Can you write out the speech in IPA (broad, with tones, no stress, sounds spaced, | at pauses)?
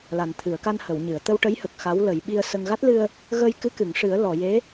l a˨˩ n t̪ʰ ɨ˨˩˨ ə̯ k a˧ n h ə˨˩˨ w ɲ ɨ˨˩˨ ə̯ t̪ ə˧ w ʈ ə˧˥ j h ə˨˩ k̚ x a˧˥ w l ə˨˩˦ j ɓ i˧ ə̯ s ə˧ ŋ ɣ a˦˥ t̚ l ɨ˧ ə̯ | ɣ ə˧ j k ɨ˧˥ k ɨ˨˩˨ ŋ ʂ ɨ˨˩˦ ə̯ l ɔ˨˩˨ j e˧˥